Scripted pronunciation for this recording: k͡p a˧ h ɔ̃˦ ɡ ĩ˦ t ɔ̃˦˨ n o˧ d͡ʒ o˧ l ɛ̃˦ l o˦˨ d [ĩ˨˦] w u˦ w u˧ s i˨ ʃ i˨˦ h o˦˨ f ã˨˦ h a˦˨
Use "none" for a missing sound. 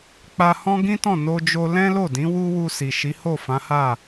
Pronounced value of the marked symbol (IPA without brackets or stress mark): ĩ˨˦